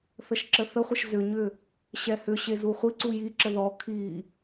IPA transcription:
θ ə ʃ ǁ ə θ ə χʷ ə ʃ z ʏ ɲ ʏ | ɕ ɛ h ʏ ɕ e z u χʷ i ǀ u j i ǁ ə ð ɔ kʰ i

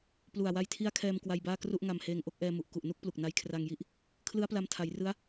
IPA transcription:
p l u˨˩ a̯ w a˧ j tʰ i˦˥ a̯ kʰ ɛː˧ m k w a˧ j b aː˥˩ k r u˥˩ ʔ ŋ a˧ m h eː˧ ŋ ʔ o˥˩ k̚ ʔ ɛː˧ m u˨˩ ʔ k u˨˩ ʔ n u˥˩ k̚ p l u˨˩ k̚ n a˦˥ j kʰ r a˧ ŋ j i˥˩ ʔ | kʰ l ɯ˦˥ a̯ p l a˧ m tʰ a˩˦ j r ɯ˦˥ a̯

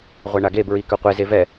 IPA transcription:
ʁʷ ɛ ɳ a ɡ e b ɹ i k œ qʷ e z e v ɛ

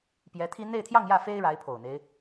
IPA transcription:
p j ɛ˧˥ t̪ʰ i˥ n̪ e˥˧ ɪ̯ t̪ʰ j ɑ˥˧ ŋ j ä˥˩ f e˥ ɪ̯ ɻ a˧˥ ɪ̯ pʰ o˨˩ ʊ̯ n̪ e˦ ɪ̯

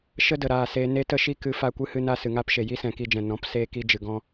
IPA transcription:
ʃ ə˦ d ə˨ ɾ aː˨ s eː˧ n e˦ t ə˦ ʃ i˦ k ɨ˧ f a˧ kʷ ɨ˧ h ɨ˧ n a˧ s ɨ˨ ŋ aː˦ p ʃ e˨ j i˦ s ɛ̃˨ k i˧ d͡ʒ ɛ̃˨ n ɔ̃˨˦ p s eː˧ k i˦ d͡ʒ ɨ˨ ɡ ɔ̃˦

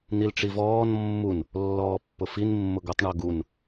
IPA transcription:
n̪ i l ʈ͡ʂ i v ɔː n mː u n | lː ɔː pː ʊ f i n mː ʊ ɡ u tˤ ɳ o ɡ u n

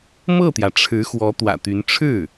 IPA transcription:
m ɤ˥˩ t̪ j ä˩ ʈ͡ʂʰ ɻ̩˧˥ x w ɔ˧˥ t̪ w ä̰˨˩ t̪ y˧˥ n ʈ͡ʂʰ ɻ̩˥˩

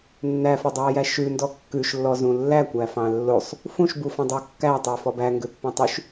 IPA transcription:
nː æ f e dˤ ɑː j æ ʃ ʉ n d ɔ kː ʉ ʃ lː ɔ z ũ lː æ kʷ æ f ɑ̃ lː o sˤ | f ũ ʃ b u f ɑ̃ dˤ o kː æ tˤ eː f ɔ b æ ŋ ɡ ø pː ɛ̃ tˤ ʉ ʃ

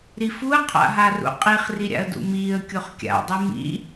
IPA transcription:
ɾ i f u ə̯ qʰ a̰ ɦ a r ṵ qʼ i χ r i ɾʲ a̰ ə̯ d ṵ m iː ə̯ kʲ o χ kʲ a̰ dˤ ɨ m ḭ

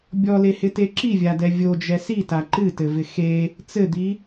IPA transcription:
bʲ ɔ l e h ɪ t e ǁ i vʲ a d ɛ vʲ o d͡ʒ ɛ s i t a ǃ ɨ t ɘ v ɪ x e | t͡s ɘ d̪ i

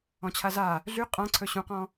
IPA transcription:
ɔ̃ t͡ɕʰ a z a | ɮ y qʼ ã ǀʰ ɵ ɕ ũ q ɔ̃

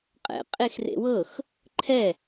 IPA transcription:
qʼ ɛ̰ qʼ e x r ḛ w ɤ x | ǃʰ ɛ

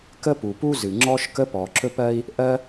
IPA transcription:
k ə˥ p u˩ p u˥ z ɨ˩ ŋ͡ǁ ɔ˥ ʃ k ə˥ p ɔ˩ ǁ ɵ˥ p ɜ˥ i̯ | ʔ ɜ˥

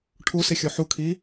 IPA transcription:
ʈʰ u s i xʲ o ħ u kʰ i

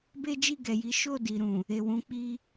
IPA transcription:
b e˦ d͡ʒ i˦˨ ɡ ɛ˨ j i˨˦ ʃ o˦˨ d i˨ ɾ ũ˨ | e˨ w ũ˨˦ k͡p i˦

